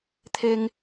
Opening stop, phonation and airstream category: aspirated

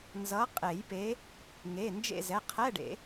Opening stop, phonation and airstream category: ejective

